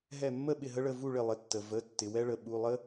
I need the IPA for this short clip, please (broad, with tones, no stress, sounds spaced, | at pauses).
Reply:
ɦ ɛ˧˩ mː ə˥˨ ɓ ɪ˧˩ ɦ ə˦ ɭ ə˩˧˩ v u˥˨ ɭ ɪ˧˩ lˠ ɪ˩˧˩ tː ə˩ v ə˩˧˩ tː ɪ˩ w ɛ˦ ɭ ə˩ ɓ u˩˧˩ lˠ ə˦